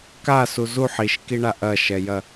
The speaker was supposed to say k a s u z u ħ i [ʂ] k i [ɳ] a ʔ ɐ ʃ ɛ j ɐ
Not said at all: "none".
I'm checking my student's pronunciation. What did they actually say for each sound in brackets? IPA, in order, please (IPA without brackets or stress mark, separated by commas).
ʃ, ɳ